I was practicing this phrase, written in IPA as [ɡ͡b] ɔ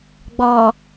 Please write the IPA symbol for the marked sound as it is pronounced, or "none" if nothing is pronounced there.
ɡ͡b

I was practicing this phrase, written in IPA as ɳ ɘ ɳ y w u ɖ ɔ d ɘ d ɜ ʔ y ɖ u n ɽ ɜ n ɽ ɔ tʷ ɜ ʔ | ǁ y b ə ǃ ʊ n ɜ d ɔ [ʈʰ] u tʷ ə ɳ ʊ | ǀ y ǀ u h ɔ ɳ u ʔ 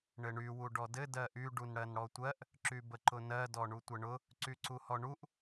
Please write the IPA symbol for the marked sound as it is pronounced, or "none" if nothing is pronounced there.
ɳ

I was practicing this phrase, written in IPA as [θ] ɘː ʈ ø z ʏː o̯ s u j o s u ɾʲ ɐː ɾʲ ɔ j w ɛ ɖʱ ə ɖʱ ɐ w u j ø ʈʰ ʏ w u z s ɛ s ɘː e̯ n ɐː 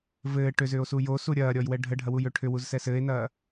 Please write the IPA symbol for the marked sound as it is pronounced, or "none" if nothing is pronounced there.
v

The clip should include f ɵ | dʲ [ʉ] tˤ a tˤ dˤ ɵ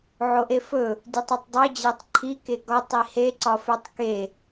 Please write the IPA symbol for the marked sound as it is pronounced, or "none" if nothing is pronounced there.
ʉ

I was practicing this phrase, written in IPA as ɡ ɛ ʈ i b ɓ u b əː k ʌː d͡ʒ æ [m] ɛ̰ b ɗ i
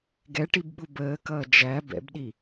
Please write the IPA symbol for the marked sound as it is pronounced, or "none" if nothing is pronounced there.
b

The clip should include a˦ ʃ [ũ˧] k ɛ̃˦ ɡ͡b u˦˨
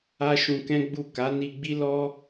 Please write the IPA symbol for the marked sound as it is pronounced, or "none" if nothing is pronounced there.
ũ˧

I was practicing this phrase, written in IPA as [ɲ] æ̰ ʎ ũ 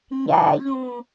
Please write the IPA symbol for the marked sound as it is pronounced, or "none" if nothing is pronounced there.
ɲ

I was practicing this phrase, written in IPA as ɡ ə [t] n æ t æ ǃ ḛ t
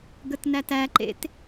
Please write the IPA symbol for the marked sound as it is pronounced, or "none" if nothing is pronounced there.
t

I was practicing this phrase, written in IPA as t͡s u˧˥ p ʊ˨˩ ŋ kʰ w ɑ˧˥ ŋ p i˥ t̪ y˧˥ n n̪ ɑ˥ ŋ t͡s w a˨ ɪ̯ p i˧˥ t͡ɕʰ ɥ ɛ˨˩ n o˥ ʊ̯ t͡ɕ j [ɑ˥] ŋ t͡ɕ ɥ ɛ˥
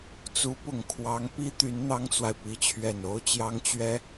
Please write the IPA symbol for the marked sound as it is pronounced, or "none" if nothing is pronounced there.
ɑ˥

